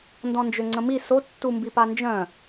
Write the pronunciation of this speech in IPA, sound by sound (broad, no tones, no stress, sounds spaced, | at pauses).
n d ɔ̃ n d͡ʒ ø ŋ͡ǀ ə̃ m i s o tː u m b i p a n d͡ʒ œ̃